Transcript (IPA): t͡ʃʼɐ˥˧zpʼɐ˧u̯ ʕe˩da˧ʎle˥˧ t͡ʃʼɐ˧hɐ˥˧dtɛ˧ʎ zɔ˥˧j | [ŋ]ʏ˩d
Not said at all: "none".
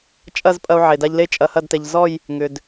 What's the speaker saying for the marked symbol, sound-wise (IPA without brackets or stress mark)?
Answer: ŋ